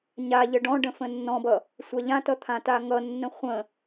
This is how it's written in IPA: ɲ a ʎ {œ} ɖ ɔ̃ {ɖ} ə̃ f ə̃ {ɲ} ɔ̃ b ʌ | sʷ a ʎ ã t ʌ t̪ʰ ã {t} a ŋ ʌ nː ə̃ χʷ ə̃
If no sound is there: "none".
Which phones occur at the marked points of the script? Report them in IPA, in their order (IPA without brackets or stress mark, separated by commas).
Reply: ə, ɖ, nː, t